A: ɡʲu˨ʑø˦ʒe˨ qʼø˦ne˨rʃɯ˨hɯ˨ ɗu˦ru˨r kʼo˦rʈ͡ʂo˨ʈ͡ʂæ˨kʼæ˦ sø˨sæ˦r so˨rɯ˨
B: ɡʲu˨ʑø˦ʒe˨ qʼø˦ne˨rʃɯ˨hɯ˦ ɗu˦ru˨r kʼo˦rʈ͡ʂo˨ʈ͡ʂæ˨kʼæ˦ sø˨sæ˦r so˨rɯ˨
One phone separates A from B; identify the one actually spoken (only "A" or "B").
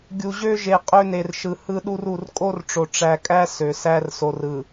B